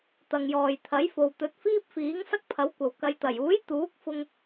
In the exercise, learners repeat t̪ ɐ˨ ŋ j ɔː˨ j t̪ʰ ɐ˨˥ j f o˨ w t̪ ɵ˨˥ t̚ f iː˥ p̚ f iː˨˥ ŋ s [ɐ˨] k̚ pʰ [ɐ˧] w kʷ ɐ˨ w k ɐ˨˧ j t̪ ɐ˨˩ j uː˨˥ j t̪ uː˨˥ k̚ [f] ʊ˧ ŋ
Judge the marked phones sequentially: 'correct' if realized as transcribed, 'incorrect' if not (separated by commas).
incorrect, incorrect, correct